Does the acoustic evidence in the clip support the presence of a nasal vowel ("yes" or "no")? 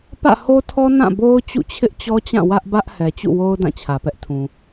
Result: yes